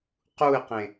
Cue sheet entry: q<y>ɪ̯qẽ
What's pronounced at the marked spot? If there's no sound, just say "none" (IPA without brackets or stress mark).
u